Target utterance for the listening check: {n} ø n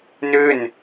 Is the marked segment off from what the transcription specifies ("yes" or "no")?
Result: no